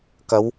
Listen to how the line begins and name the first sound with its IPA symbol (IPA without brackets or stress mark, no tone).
k